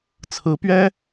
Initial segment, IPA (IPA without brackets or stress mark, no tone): t͡sʰ